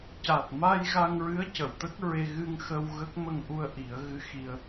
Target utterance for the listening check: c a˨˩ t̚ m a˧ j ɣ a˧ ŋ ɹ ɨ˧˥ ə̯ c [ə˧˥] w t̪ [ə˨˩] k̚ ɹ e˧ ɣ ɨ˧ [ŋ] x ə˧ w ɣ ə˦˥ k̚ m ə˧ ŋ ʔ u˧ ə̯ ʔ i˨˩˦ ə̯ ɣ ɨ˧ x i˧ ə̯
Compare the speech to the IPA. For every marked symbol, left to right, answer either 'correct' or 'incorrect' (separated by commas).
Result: incorrect, incorrect, correct